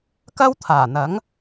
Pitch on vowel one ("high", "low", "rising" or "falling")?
high